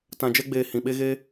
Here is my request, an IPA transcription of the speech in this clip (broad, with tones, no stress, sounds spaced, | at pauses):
t ã˧ d͡ʒ ɛ˦ ɡ͡b eː˧ h ĩ˨ ɓ e˦ ɣ e˦